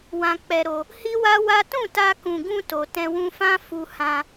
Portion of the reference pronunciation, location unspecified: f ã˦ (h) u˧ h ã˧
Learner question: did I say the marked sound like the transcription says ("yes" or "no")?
no